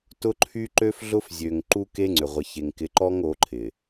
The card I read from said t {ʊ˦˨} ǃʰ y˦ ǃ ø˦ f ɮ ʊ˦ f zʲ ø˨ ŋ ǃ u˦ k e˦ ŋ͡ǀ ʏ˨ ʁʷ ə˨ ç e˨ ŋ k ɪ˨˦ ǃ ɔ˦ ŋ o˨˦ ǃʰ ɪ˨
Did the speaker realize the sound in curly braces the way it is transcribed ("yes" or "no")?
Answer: no